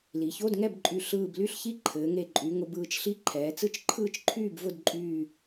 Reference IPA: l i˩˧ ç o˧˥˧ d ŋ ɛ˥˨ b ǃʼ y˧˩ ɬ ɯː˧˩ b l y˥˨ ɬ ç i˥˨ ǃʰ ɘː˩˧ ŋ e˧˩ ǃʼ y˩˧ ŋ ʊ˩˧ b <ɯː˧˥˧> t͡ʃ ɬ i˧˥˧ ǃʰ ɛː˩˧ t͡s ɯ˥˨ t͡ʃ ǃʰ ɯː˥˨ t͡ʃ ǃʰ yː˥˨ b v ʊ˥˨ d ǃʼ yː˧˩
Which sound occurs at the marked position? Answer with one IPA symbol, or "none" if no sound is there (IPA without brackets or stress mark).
ɯː˩˧